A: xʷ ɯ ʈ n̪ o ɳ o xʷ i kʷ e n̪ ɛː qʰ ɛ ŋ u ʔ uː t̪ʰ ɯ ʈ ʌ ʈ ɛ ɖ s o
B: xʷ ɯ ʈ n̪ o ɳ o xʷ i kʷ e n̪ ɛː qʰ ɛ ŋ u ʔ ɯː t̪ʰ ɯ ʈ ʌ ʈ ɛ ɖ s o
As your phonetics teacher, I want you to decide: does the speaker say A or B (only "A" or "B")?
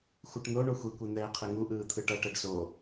B